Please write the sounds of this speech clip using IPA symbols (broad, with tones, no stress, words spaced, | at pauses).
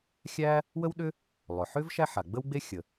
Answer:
xʲæ˥ | wə˥wɗʏ˥ | lˠœ˩ħʏ˥v ʃæ˥ħa˩ɡ͡bə˥wɡ͡be˥ xʲə˩